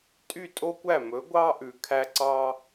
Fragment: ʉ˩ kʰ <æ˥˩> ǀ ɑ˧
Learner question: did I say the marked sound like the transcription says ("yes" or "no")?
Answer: no